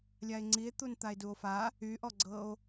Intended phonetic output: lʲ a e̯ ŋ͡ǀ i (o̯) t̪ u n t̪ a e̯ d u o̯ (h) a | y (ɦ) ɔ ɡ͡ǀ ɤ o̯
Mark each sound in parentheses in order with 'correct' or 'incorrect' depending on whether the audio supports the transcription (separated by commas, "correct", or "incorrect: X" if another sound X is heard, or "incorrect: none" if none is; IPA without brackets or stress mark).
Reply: incorrect: e̯, incorrect: f, incorrect: ʔ